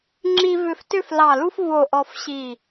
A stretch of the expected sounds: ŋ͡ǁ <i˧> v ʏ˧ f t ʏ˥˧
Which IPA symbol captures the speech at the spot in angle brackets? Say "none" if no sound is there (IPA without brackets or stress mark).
i˧